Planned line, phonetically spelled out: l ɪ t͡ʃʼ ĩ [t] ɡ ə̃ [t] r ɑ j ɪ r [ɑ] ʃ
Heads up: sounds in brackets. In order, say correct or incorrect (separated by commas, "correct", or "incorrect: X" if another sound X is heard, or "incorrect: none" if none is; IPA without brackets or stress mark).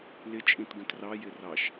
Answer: correct, correct, correct